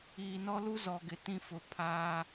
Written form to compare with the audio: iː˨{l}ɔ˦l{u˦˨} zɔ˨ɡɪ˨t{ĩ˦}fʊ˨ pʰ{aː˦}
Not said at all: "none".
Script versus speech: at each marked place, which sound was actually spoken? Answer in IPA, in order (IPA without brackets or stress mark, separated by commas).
n, u˦, ĩ˦, aː˦